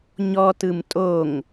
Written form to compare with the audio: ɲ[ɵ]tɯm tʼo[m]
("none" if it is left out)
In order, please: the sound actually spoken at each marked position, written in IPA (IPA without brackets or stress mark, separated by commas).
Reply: ɔ, ŋ